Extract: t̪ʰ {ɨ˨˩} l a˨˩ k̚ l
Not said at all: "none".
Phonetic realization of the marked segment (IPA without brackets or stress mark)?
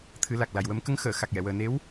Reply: ɨ˨˩˦